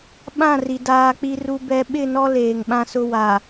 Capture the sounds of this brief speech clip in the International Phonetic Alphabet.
ɓ ã˦˨ r i˨ d aː˦ k͡p i˦ r u˦ b ɛ˨˦ ɓ ɪ˦˨ n ɔ˦ l eː˨ ŋ ɓ ã˦ s ʊ˦ w a˨

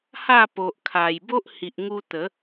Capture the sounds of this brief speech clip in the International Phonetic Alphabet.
h a˥˧ p o˨ ʔ kʰ a˨˩ j b o˦ ʔ h i˨ ʔ ŋ u˧ t̪ ə˨˦

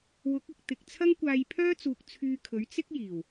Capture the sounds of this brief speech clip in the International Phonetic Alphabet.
w ʊ˨˥ k̚ ɪ˨ k̚ t̪ ɪ˨ k̚ t͡sʰ ɐ˥ ŋ kʷ aː˧ j pʰ œː˥ t͡s uː˨ k̚ t͡sʰ yː˧ kʰ ɵ˨˥ ɥ t͡s ɪ˥ k̚ j iː˨˩ w

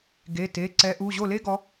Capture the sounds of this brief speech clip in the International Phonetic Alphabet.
ɡ e˩˧˩ t e˩˧˩ ǀ ɛ˨˦ ʔ u˩˧˩ ʑ o˥˩ l e˥ ɡ ɔ˨˦

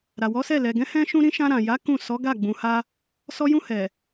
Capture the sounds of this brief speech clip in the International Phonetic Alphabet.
ɾ a˨ w ɔ˨˦ s ɛ˦˨ l ɛ˨ ɡ ɛ̃˨˦ h ɛ̃˦ ʃ ũ˦ ɾ ĩ˦ ʃ ã˧ ɾ ã˨ j a˨˦ k ũ˦˨ s ɔ˨˦ ɡ a˦˨ ɡ͡b ũ˨ h a˧ | s ɔ˧ j ũ˧ h ɛ˨

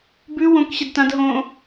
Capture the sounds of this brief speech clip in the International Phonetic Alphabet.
b ʉ w õ k ɕ ɛ d t ã d ɦ õ

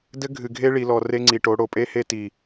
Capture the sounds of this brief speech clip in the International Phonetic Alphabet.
d ɘ˦ ɡʱ ɨ˨ ɡʱ e˦ ɭ i˨ l ɔ˨ r e˦ ŋ͡ǀ i˨ ʈ o˨˦ ɽ o˨ pʼ e˦ h e˦ t i˨

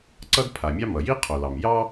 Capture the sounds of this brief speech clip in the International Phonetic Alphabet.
ǀ ʌ˥ d pʰ a˩ mʲ ɑ˥ m ʌ˩ j i˥ qʰ o˩ l ɑ˩ m j ɑ˥

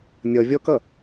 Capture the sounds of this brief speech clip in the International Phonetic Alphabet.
nʲ ʌ vʲ ɔ k ʌ

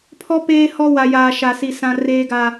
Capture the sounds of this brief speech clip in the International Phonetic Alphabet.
pʰ ɔ˦ p eː˦ h ɔ˦ w a˨ j aː˨ ʃ a˨ s i˨ s ã˦ r eː˦ ɡ a˦

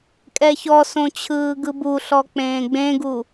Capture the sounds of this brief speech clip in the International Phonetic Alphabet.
kʼ ɛ ç ɔ s õ t͡ɕʰ ɯː ɡ ɯ b u ɬ ɔ k͡p ẽː ɡ͡b ẽ ɡ u

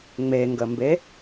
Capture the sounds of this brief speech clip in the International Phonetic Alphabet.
ŋ͡m e ŋ ɡ ə m b e

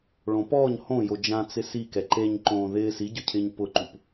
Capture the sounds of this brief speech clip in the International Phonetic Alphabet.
ɭ õ p ɔː ɲ h õ j o d͡ʒ ã t͡s ɪ s i k ɛ ǃ e ɲ ǃ õː ð ɪː s i ɟ ʊ cʰ ɪː ɲ p ʊ ǃ u p

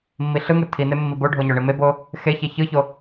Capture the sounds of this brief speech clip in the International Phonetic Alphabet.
mː i ɬ ɯ ŋ ɯ tʰ i n e mː i b o ɖʱ o ɲ o ɳ i m e b o | x e ç e ç ɯ ç o

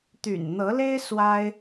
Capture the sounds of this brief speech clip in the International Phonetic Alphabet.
t̪ y̰˨˩ n n̪ ɤ˨˦ l e˦ ɪ̯ s w a˦ ɪ̯

